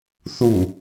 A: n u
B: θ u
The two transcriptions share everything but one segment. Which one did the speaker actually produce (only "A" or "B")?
B